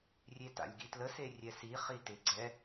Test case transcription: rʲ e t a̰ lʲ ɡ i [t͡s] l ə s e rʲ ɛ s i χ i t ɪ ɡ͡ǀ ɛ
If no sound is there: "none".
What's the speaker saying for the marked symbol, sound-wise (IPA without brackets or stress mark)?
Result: t